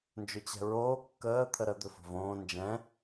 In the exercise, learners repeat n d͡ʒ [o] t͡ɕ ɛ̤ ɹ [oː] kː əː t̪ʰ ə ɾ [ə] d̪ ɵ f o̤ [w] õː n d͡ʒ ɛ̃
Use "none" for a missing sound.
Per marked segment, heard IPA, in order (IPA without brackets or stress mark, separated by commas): ɵ, oː, ə, v